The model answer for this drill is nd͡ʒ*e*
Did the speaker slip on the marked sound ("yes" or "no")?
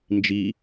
yes